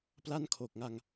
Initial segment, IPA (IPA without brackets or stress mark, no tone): p